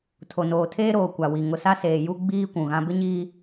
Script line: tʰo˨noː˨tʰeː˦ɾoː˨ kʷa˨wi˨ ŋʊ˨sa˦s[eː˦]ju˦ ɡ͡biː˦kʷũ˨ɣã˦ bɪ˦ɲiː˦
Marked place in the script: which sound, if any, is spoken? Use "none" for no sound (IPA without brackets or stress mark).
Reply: eː˨